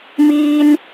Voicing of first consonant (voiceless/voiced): voiced